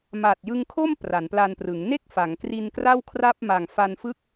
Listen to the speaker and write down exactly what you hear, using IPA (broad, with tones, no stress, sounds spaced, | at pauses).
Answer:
m aː˨˩ t̚ j ɯ˧ ŋ kʰ o˥˩ m p r a˩˦ n p l a˧ n p r ɯ˩˦ ŋ n e˥˩ k̚ f a˩˦ ŋ k r i˧ n k r a˥˩ w kʰ r a˥˩ p̚ m a˨˩ ŋ f a˧ n f ɯ˥˩ k̚